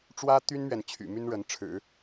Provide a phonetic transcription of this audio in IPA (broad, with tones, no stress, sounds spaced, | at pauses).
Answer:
ʈ͡ʂ w ä˥ t̪ y˥ n m ɥ ɛ˨ n t͡ɕʰ y̰˨˩ m y˥ n ɻ ə˧˥ n ʈ͡ʂʰ ɻ̩˨˩˦